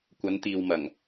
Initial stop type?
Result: plain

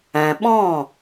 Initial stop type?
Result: implosive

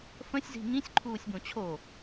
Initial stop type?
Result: click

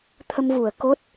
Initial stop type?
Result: aspirated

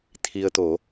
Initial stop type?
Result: aspirated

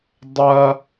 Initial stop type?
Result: plain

